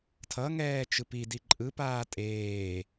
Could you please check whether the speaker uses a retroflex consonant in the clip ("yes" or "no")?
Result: no